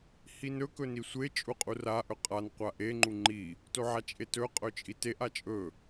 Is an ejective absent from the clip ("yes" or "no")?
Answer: no